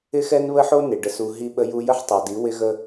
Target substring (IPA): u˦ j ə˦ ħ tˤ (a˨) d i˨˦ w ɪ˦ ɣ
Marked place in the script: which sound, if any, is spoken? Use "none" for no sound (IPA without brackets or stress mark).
a˨